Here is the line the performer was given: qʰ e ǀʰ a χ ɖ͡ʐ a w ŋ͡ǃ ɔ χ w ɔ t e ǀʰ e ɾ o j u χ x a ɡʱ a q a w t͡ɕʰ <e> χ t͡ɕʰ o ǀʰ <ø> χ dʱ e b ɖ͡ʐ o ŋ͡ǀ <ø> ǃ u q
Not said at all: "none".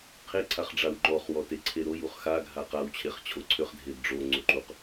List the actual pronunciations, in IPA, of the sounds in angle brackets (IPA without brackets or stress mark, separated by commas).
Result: e, ø, u